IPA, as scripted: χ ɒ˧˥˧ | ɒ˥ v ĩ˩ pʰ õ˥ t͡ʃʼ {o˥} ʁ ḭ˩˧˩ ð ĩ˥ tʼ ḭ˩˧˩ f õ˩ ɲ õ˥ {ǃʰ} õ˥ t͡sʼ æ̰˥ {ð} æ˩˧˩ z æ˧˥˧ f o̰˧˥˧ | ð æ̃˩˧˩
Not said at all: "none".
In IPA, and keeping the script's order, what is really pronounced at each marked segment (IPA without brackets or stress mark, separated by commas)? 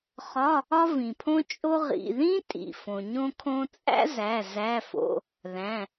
o˥, kʰ, z